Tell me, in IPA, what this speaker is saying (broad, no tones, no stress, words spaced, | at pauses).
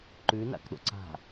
ǃʉna̰kɗo̰ ǀa̤